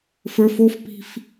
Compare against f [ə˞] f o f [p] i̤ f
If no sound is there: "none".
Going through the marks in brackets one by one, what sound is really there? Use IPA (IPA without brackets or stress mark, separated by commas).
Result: ə˞, p